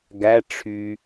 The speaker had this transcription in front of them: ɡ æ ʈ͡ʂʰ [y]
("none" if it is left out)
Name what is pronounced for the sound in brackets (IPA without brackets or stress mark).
y